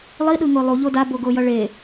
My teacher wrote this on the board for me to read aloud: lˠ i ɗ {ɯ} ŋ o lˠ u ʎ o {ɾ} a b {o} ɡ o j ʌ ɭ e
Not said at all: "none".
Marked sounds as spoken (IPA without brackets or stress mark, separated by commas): ɯ, d, o